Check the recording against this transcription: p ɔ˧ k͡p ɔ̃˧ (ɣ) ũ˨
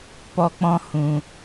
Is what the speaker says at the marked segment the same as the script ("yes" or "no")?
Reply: no